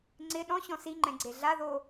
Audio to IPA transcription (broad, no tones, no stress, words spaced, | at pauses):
ŋ͡ǀɪ ɗɔ̃ɕɔ̃ siŋ͡ǃɛ̃ɡ͡ǀe ɮaðo